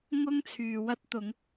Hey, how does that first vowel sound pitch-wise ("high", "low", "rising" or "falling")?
high